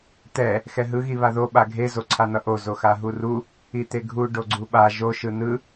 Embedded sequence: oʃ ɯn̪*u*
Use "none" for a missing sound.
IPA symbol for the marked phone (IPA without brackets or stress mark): ɯ